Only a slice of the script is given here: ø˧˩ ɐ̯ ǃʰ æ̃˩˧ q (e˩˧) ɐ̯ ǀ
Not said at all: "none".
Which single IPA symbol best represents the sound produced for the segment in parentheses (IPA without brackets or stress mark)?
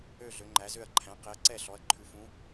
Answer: e˩˧